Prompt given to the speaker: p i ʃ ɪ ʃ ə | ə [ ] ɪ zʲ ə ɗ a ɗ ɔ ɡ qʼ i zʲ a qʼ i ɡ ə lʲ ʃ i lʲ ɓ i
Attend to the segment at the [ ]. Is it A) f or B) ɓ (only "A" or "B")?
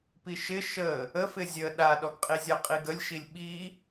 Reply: A